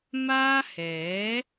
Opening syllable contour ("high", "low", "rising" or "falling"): high